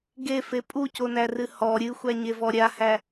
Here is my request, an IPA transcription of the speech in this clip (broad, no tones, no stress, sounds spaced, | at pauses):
ɡ e f e pʼ u c o n æ r ɨ h ɔ ɾʲ ɨ xʷ æ ɲ e v ɔ ɾʲ a h æ